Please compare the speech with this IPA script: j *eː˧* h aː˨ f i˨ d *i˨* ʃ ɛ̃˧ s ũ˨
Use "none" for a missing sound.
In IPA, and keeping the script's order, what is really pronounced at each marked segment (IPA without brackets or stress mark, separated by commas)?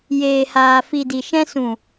eː˨, i˨